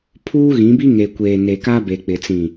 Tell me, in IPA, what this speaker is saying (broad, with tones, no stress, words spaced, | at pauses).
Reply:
pʰuː˦ɣĩ˨˦bi˦ ŋe˨kʷeː˨ne˨ ka˦be˨k͡pɪ˨ t͡sĩ˨